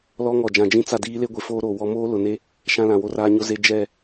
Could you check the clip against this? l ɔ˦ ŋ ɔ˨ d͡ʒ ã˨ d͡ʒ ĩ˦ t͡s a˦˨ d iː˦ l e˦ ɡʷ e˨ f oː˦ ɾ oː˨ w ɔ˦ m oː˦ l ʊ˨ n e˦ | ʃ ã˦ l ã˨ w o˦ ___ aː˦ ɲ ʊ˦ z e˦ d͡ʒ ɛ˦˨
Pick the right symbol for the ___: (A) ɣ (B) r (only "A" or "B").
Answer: B